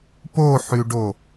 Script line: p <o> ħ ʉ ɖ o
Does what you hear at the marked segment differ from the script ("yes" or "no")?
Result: no